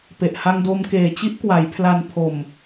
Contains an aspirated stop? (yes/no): yes